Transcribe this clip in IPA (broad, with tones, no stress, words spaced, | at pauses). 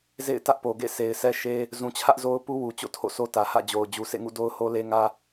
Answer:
zḛ˦˨ɪ̯tä˦ʔpo˨ɡḛ˦˨ se˨ɪ̯sʰɛ˦ʃe˦ | zũ˨t͡ɕʰä˦ʔ zo˦ʊ̯pu˦wu˨ t͡ɕo̰˦˨tʰo̰˦˨sʰo˦tä˨ hä̰˦˨d͡ʑo˨ʊ̯ d͡ʑu˨sʰḛ˦˨ŋṵ˦˨ do˦ʊ̯ho˦le˦ŋä˦